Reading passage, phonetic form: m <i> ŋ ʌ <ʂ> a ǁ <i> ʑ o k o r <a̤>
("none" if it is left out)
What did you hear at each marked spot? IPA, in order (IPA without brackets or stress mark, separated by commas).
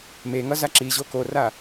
e, z, i, a